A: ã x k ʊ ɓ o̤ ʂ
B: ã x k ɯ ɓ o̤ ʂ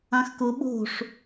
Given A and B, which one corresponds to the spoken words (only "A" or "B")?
A